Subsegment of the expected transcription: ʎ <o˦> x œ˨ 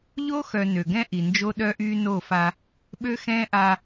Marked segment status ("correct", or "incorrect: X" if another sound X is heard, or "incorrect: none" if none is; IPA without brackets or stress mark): correct